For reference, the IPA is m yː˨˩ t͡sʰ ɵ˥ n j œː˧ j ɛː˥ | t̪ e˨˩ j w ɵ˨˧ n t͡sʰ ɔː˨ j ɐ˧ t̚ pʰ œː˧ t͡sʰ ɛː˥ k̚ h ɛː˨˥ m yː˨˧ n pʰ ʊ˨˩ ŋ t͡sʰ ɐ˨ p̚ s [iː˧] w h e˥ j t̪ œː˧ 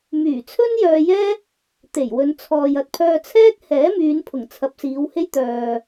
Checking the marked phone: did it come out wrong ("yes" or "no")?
yes